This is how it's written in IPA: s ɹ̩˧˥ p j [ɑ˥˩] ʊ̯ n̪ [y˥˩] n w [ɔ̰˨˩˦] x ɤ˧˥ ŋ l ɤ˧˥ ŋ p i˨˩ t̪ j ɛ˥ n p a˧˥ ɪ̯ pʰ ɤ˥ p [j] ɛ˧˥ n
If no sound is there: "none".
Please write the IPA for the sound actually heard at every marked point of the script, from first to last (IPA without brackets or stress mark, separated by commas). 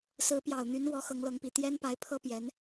ɑ˨˩, y˧˥, ɔ˧˥, j